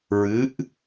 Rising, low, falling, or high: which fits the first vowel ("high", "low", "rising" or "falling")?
rising